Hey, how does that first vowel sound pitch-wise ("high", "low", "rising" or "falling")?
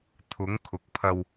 rising